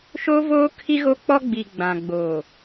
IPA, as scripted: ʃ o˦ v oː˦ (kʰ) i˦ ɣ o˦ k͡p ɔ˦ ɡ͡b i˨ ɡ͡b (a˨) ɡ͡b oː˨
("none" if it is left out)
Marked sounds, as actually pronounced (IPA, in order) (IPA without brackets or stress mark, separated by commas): kʰ, ã˨